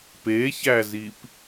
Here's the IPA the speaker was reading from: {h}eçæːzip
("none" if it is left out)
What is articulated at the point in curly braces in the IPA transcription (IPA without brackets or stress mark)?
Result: p